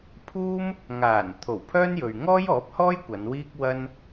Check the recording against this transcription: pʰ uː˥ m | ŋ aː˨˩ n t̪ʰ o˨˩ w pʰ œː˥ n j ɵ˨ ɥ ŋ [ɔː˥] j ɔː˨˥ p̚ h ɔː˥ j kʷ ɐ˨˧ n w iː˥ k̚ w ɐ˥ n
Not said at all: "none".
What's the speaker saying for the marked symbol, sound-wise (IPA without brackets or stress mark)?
ɔː˥